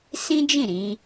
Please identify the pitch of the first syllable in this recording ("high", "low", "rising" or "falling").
high